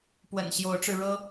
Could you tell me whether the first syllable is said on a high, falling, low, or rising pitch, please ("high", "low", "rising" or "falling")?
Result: low